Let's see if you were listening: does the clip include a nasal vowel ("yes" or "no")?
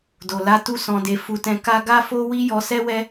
yes